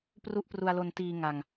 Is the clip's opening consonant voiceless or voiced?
voiceless